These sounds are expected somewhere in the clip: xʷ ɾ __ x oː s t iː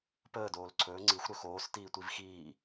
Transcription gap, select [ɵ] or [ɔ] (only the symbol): ɵ